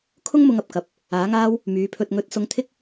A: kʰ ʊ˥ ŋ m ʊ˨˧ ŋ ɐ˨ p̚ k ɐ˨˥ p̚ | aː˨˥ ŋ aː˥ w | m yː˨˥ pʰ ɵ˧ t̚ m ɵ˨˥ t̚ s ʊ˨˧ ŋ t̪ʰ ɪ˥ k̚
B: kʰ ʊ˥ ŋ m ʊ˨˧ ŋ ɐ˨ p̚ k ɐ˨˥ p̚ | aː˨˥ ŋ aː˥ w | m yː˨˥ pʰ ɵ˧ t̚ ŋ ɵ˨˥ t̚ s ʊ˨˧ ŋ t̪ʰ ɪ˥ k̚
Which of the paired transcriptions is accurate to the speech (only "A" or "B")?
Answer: B